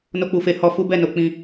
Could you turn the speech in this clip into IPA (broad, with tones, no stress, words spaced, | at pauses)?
no˧k͡pu˨fe˧hɔ˧ fu˦bɛ˦˨no˧ k͡pĩ˧